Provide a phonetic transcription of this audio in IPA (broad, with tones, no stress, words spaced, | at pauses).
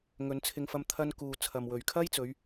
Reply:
ŋɵ˨˧nt͡sʰɪ˧ŋfɐ˧m t̪ʰɐ˧nkuː˨ t͡sʰɐ˨mwɵ˨ɥkʰɐ˥jt͡sɵ˨˧ɥ